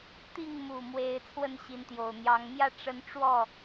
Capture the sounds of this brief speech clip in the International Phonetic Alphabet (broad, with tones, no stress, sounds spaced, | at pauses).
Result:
t̪ i˥˨ ŋ m u˨˩ m w e˨˦ ɪ̯ t͡sʰ w ə˥˨ n ɕ i˨˦ n t̪ j o˨˩ ʊ̯ n̪ j ɑ˨˦ ŋ m j ä˥˨ ʈ͡ʂ ə˦ n ʈ͡ʂ w ɔ˥˨